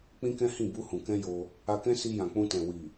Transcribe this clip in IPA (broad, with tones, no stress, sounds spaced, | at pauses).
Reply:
k͡p ĩ˦ k ɛ̃˦ h ĩ˦˨ b u˧ h ũ˨ k ɛ̃˧ j o˧ | a˧ k ɛ̃˦ s i˧ j ã˨ k͡p ũ˧ t ɛ̃˨ w i˨